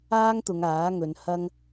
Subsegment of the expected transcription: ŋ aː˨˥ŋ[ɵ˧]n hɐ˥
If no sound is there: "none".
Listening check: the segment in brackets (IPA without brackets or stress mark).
ɵ˨˧